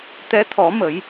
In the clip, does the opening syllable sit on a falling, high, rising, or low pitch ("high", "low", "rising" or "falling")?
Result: rising